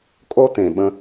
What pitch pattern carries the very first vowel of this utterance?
high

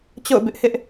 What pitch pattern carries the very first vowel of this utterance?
falling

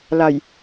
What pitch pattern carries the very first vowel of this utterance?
low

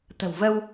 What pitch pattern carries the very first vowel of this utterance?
low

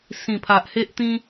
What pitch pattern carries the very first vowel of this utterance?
low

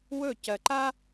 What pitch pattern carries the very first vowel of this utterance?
falling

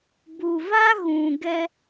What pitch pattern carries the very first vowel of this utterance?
low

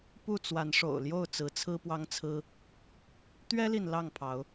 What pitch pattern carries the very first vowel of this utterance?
falling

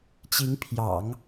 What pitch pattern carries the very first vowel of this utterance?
rising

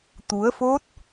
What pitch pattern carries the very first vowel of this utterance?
rising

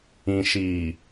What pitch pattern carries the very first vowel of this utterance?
low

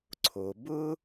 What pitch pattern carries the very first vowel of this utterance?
low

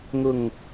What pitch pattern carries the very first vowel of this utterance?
low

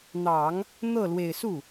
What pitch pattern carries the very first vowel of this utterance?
low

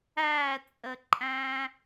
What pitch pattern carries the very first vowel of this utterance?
falling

